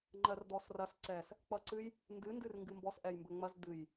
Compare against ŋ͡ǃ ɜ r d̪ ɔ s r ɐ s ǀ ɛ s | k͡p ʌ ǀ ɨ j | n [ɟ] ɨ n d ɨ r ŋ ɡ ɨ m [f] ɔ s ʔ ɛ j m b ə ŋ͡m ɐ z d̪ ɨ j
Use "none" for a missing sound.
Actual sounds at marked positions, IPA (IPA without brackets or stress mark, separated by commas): d, b